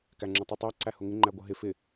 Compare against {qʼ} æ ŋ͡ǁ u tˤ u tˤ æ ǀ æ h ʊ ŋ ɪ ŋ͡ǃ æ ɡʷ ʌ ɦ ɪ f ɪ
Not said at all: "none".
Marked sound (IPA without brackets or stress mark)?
k